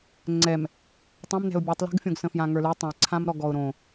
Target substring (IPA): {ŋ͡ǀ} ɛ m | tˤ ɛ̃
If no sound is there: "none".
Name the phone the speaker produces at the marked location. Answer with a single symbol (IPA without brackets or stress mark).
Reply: ŋ͡ǀ